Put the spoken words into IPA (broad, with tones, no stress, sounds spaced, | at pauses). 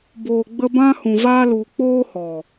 b oː˨ ɡ͡b ə˧ b ã˧ h ũ˨ v aː˧ l u˨ k͡p oː˦ h ɔ˨